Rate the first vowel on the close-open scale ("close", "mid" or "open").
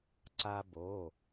open